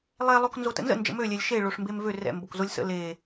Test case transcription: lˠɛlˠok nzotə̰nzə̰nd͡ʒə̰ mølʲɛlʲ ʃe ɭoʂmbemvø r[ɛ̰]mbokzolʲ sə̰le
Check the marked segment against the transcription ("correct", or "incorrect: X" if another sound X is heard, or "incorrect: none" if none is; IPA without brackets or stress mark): correct